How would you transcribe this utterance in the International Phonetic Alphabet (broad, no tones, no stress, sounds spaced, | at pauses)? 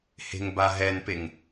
h e̤ ŋ b a ɦ ɛ n p e ŋ